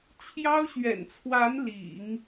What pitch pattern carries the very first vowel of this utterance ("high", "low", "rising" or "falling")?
high